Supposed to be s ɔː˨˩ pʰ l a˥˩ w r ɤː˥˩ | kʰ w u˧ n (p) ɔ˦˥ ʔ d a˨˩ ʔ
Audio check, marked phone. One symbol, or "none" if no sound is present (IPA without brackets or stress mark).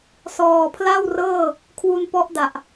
p